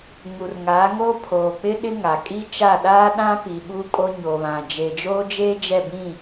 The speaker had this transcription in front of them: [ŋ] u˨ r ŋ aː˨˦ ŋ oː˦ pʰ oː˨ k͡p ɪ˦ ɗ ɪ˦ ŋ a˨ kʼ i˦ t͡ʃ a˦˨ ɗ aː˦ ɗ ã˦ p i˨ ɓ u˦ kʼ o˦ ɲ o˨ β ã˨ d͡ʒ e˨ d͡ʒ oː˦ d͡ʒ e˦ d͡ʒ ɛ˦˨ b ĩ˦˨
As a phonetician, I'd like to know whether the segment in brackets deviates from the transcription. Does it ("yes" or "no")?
no